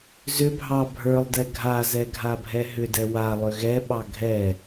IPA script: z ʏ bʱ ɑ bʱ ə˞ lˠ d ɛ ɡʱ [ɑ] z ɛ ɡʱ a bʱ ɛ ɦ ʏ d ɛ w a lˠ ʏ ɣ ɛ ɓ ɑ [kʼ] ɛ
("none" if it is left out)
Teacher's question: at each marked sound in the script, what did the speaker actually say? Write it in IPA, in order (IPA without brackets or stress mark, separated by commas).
a, ɡʱ